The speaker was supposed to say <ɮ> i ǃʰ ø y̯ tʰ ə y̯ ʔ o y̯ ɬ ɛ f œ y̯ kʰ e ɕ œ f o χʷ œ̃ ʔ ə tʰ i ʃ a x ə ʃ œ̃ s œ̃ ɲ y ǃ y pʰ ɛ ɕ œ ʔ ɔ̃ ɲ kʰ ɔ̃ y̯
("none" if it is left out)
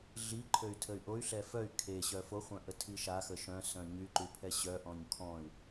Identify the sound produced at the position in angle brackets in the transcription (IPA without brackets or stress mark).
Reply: ɮ